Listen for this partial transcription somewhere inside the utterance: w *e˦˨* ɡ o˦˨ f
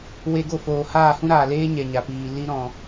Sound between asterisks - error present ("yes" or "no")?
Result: yes